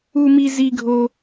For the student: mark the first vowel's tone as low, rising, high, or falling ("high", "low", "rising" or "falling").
high